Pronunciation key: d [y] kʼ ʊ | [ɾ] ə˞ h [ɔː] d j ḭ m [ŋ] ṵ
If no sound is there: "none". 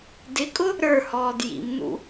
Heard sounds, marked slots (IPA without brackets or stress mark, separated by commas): ɪ, ɾ, ɔː, n